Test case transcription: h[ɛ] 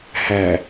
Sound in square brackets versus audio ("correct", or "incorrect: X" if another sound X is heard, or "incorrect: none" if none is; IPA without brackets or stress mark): incorrect: æ